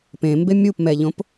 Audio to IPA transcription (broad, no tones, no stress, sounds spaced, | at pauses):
p ẽ m b e mʲ u p m ɛ ʎ õ p